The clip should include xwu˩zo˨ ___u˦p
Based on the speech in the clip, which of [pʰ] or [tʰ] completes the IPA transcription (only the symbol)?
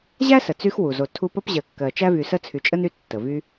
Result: tʰ